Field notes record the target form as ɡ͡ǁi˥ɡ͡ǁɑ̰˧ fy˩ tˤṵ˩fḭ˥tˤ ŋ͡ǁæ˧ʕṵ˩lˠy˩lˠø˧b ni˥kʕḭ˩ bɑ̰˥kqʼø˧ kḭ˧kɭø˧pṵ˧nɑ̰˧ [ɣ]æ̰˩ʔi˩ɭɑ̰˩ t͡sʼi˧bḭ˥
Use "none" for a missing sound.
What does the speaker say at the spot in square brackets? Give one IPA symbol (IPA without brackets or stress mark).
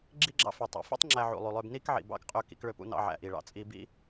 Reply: ʕ